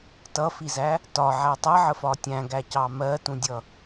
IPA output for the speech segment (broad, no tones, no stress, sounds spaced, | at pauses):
t ʌ f i z æ | t ɒ ʕ æ tˤ ʌ ʕ ə f ɒ tʲ æ̃ ɡ æ c ɑ m ɜ t ũ dʲ ʌ